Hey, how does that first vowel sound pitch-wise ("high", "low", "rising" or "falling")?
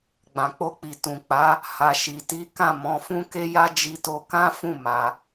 low